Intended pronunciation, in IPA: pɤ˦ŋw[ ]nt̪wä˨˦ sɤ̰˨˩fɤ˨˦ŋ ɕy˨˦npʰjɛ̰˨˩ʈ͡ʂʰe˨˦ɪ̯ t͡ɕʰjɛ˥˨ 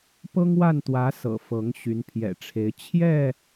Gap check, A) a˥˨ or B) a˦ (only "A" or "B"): A